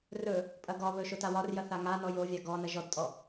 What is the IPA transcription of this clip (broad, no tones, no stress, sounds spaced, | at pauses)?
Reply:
r ɵ | pʼ ɐ ɡ ɒ β ɵ ʃ o t a w ɒ r j ɐ θ a ŋ a n ɔ j o vʲ a ɡ ɔ n ɐ ʒ ɔ d tʼ ɔ